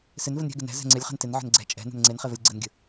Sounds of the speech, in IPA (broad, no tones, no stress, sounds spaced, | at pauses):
s ɪ n v ə n ɾʲ ɛ̤ ɡ ɪ n ɛ̤ z ɛ̤ ŋ͡ǀ ɪ lʲ χ ɛ̤ n t ɪ n ʕ ə̤ n ɡ͡ǀ ɛ̤ t͡ʃʼ ɛ̤ n ɛ̤ n ŋ͡ǀ e n χ e v ə lʲ ɡ͡ǀ ə n ɡʲ ə̤